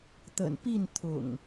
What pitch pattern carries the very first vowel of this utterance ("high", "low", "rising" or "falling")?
low